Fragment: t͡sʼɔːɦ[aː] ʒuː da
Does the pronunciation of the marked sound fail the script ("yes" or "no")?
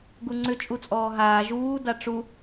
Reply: no